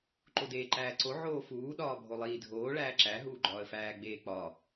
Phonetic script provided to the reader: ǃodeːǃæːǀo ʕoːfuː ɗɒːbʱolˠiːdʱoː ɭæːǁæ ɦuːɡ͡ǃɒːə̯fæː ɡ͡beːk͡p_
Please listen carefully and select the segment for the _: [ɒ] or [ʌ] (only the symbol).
ɒ